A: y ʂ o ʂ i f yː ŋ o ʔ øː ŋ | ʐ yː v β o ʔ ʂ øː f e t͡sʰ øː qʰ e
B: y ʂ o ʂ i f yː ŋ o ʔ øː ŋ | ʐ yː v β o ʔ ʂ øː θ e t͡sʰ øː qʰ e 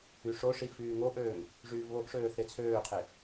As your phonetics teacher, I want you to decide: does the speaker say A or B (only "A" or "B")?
B